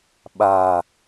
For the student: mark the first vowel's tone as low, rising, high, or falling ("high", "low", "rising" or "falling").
low